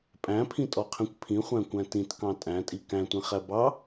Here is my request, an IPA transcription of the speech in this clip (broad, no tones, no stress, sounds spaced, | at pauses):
pʼ æ̃ pʰ ĩ tʼ ɔ qʰ ĩ kʷ pʰ ĩ χʷ æ̃ kʷ æ̃ t ĩ t k ɑ̃ tʼ æ̃ tʼ i k æ̃ tʷ ĩ χ æ b ɑ